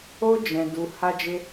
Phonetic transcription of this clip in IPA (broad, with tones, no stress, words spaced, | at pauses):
o˦d͡ʒɛ̃˧du˧ ha˦d͡ʒe˦